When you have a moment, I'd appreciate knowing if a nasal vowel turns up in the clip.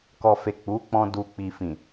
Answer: yes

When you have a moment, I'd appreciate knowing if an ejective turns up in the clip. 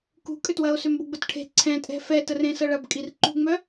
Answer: yes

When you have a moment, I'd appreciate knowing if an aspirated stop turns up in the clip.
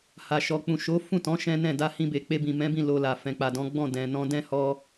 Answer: no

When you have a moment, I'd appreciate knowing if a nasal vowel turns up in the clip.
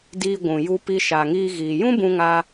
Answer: yes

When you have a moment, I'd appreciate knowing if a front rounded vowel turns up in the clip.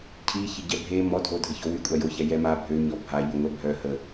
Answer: yes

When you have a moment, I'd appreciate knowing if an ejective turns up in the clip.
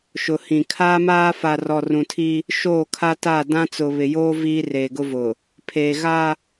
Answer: no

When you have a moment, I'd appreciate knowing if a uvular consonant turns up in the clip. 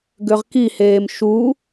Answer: yes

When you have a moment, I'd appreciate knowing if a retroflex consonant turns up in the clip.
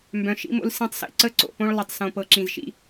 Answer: yes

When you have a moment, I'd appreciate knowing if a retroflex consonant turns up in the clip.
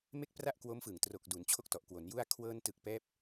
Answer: no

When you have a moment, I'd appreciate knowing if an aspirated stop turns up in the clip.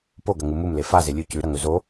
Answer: no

